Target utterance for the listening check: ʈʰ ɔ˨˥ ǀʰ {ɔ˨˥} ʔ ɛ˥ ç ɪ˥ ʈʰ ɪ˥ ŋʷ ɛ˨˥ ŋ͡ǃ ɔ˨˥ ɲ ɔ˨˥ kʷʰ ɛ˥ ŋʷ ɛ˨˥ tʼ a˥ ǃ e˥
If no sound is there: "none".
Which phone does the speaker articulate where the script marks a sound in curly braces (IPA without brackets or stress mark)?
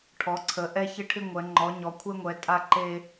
ə˨˥